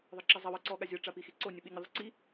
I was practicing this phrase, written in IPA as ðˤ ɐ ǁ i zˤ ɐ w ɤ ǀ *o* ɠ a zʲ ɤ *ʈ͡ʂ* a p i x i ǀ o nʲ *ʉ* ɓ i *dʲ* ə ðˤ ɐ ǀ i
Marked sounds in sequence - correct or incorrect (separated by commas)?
incorrect, correct, incorrect, incorrect